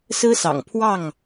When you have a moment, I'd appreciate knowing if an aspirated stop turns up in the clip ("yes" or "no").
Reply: yes